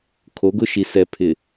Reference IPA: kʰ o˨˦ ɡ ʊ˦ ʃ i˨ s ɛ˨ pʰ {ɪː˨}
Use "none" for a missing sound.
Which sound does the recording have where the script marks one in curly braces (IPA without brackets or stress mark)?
ɪ˨